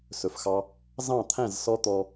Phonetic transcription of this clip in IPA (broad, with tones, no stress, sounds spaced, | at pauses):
s ɵ˨ f x ɑ˧ | z ɑ̃˦˨ t̪ʰ æ̃˦˨ z s ɔ˦ t̪ ɔ˦